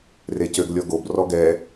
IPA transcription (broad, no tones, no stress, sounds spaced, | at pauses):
r e c ø ɡ lʲ ɔ ɡ o b r ɔ ɡ ɛ